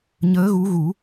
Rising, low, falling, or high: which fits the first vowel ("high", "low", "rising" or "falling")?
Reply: rising